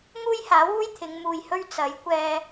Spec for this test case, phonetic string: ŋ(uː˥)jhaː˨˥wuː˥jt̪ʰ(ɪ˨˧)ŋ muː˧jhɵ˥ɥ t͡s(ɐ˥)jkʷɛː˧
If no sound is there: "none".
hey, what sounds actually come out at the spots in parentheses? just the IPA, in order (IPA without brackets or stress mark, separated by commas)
uː˥, ɪ˨˧, ɐ˨˥